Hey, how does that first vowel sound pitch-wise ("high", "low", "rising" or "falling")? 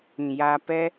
low